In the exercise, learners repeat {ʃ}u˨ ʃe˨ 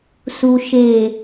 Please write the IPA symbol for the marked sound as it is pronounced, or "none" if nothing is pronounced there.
s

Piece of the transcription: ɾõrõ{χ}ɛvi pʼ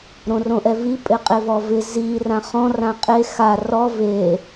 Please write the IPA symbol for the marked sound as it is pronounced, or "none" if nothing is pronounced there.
ʔ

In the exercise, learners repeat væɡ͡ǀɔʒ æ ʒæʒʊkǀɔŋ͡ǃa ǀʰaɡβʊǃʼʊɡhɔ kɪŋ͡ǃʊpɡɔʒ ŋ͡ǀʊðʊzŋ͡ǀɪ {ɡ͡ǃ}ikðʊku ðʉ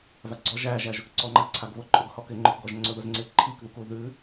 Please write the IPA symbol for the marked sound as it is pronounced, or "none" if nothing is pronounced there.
ǃʰ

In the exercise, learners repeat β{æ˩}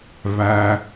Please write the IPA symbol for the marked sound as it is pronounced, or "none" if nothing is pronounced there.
æ˩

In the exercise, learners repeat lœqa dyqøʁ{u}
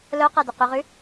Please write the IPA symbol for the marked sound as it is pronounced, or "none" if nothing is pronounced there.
y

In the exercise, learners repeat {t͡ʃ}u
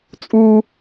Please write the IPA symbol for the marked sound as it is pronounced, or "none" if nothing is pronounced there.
t͡sʼ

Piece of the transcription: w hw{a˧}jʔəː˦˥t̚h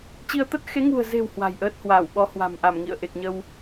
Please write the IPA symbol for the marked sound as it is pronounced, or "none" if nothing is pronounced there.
a̤˨˩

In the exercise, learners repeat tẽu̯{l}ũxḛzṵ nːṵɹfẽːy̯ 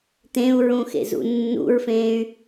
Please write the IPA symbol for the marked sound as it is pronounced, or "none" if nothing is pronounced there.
ɹ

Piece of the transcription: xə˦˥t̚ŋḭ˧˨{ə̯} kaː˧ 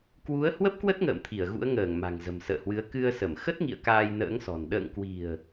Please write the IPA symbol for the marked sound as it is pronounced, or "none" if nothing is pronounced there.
ə̯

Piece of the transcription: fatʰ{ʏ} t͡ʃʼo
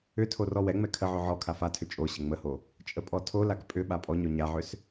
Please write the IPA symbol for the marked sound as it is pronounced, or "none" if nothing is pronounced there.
ʏ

